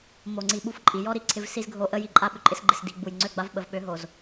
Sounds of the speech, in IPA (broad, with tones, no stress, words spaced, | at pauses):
mo˨ŋ͡ǀi˨ ɓu˦fǃʼi˨ jɔ˦ɾi˨ ǀʰɪ˦vsi˦zɡʱo˦ ʔə˦ji˨ ǃʼa˦ ɓʏ˨ǃʼɪ˦sɡ͡ǃɪ˨s di˨ɡ͡bu˨j ŋ͡ǀø˦˨ɡ͡ba˦v ɓə˨v ɓø˨˦ɦo˨z